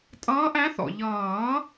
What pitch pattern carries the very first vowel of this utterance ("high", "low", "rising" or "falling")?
rising